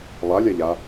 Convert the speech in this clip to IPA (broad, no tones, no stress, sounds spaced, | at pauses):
lˠ a lʲ a ʎ a